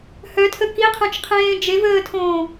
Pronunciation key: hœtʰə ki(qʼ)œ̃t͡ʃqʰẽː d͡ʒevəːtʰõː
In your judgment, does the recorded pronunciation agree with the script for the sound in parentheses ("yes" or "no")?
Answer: no